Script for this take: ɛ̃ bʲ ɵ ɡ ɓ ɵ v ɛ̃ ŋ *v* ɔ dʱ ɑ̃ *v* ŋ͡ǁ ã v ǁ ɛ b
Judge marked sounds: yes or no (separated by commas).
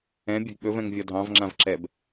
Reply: no, yes